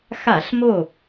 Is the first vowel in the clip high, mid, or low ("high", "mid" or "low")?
low